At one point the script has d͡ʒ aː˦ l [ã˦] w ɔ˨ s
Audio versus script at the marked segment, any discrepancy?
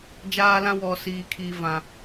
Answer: no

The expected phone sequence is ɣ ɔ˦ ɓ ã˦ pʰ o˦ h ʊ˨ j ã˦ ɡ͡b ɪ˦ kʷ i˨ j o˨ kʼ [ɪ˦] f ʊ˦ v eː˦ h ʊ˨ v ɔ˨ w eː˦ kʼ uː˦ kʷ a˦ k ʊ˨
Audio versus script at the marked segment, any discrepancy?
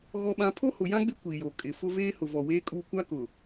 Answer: yes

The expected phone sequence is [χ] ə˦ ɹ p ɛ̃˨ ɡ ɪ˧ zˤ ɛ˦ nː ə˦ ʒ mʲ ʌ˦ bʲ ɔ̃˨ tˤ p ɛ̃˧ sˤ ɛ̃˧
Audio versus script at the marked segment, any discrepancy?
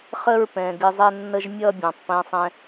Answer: no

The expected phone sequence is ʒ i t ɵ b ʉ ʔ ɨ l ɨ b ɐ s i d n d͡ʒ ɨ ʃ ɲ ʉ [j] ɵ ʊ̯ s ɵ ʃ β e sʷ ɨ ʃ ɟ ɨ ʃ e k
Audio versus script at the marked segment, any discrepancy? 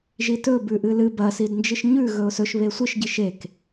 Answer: yes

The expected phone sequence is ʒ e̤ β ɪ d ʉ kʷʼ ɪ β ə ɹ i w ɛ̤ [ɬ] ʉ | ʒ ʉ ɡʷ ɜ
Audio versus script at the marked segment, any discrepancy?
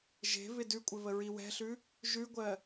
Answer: no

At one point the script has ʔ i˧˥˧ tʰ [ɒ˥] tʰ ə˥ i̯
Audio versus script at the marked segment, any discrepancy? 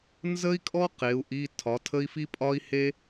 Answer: yes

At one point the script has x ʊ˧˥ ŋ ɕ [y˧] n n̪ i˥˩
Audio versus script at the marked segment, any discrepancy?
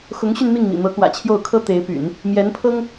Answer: no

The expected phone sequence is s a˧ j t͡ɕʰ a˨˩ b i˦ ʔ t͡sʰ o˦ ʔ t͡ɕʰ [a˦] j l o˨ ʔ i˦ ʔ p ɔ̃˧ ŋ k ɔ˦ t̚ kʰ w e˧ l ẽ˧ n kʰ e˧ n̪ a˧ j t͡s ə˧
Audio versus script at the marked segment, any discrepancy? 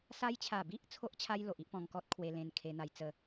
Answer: no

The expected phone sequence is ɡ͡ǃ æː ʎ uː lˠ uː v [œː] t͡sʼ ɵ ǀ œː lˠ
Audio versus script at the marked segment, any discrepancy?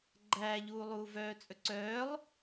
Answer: no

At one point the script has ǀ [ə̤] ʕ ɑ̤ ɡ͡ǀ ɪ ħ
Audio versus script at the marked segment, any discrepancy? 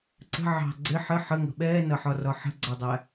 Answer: no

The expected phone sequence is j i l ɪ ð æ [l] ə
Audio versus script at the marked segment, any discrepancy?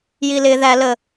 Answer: no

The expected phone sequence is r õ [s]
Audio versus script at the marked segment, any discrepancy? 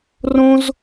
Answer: yes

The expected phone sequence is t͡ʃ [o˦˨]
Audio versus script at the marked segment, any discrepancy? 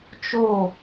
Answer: no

